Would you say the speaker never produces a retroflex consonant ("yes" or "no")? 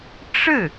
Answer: no